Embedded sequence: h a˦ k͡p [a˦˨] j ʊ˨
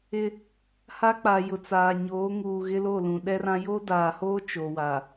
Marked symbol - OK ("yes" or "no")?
no